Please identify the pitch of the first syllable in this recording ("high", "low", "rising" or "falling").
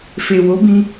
low